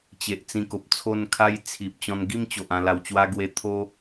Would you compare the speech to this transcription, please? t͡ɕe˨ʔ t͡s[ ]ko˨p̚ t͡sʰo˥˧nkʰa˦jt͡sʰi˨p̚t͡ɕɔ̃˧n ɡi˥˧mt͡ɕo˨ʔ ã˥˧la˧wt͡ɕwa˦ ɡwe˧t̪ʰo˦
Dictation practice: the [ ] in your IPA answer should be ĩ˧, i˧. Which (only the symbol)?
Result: ĩ˧